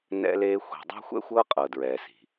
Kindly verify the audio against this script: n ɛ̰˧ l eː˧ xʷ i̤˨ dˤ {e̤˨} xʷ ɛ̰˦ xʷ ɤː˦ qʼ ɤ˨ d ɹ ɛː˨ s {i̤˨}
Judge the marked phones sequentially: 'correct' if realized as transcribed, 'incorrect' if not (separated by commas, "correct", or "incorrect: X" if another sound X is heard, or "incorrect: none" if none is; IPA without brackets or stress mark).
incorrect: e̤˦, correct